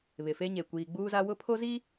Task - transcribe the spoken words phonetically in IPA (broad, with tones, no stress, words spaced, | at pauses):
βɪ˨fe˦ɲe˨ kʷiː˨ɡ͡buː˦za˦ wʊ˦pʰo˦ zi˦